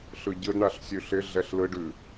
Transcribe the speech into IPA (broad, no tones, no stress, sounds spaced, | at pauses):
ɬ ɯ ɟ ɯ d ɳ a ɬ sʲ ʉ ɬ ɪ ɮ ɛ ɬ l ɯ ɖ ʉ